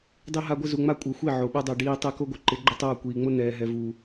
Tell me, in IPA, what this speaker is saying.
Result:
dˤ i˦ ɦ a˦ ɡʷ ɪ˦ z u˨ ŋ͡m a˦ kʷʼ ɤ˨ xʷ i˦˨ ʕ o˨ ɓ ɛ˦ dˤ ɛ˨ ɖ iː˨ tˤ ɛ˦ k o˦ ɡʷ ɪ˨ ǃ ɪ˨˦ ɡ͡ǃ ɪ˦ tˤ oː˦˨ kʷ iː˨ ŋ͡m o˦ n ɛː˨ ɦ ɛ˨ v u˨

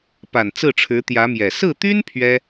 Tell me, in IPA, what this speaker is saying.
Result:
p a˨˩ n t͡s ɹ̩˥˩ ʈ͡ʂʰ ɻ̩˧˥ t̪ j ä˧˥ m j ɛ˨˩ s ɹ̩˥˩ t̪ y˥ n pʰ ɥ ɛ˥

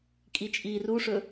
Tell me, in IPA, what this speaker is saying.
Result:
kʼ i t͡ʃʼ iː r u ʂ ɵ

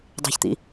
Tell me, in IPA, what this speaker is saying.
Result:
dˤ e̤ ç t̪ ḭ

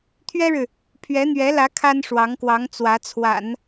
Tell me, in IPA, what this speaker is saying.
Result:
t̪ʰ ɥ ɛ˥ ɻ ɻ̩˨ | pʰ ɥ ɛ˧˥ n̪ ɥ ɛ˧˥ l ä˧˥ kʰ a˥ n ʂ w ɑ˧˥ ŋ k w ɑ˧˥ ŋ t͡s w ä˧˥ t͡sʰ w a̰˨˩˦ n

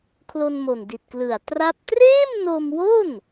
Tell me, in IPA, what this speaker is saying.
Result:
kʰ l o˧ n m o˨˩ n d i˨˩ t̚ k l ɯ˨˩ a̯ t r a˥˩ p̚ t r eː˥˩ m n o˧ m w o˥˩ n

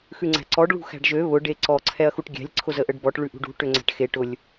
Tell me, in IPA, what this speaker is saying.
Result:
x ʉ ŋ͡ǀ æ̤ ǀ ɔ ɖ ɭ ṳ x æ̤ ɖ ʒ ø β ʊ ɖ e ǀ ɔ ǀʰ ɛ ɐ̯ x u ʈ ɡʲ æ̤ lʲ ǀʰ ʊ z ə ʔ ə ɖ b ɔ ʈ ɭ ʉ ʔ ṳ ɖ ṳ ʈ ø ŋ͡ǀ æ̤ ʈ x e ʈ ʊ lʲ

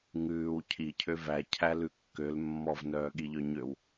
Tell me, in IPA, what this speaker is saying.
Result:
ŋ ʉː w cʰ i cʰ ø v æ cʰ æ l ʉ kː ø l mː ɔ v n œː ɠ i ʎ œ ɲ ø w

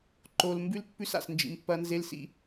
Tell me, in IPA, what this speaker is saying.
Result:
ǃ o˨ l m b ʉ˦ l pː ʉ˦ s a̰˨ s n d͡ʒ ḭ˨ m pː ɐ˦ n z e˦ l s ḭ˦˨

